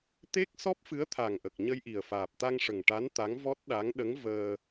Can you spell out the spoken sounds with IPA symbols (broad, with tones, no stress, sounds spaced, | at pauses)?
t̪ e˦˥ k̚ s ɔ˦˥ p̚ f ɨ˧˥ ə̯ t̪ʰ a˨˩ ŋ ʔ ə˨˩ k̚ ɲ ə˧ j ʔ i˨˩ ə̯ f aː˨˩ p̚ t̪ a˧ ŋ ʂ ə˨˩ ŋ ʈ a˧˥ n t̪ a˧˥ ŋ v ɔ˦˥ t̚ ɗ a˧˥ ŋ ɗ ə˧˥ ŋ v əː˧